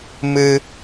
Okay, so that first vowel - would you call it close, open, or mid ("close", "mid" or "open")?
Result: close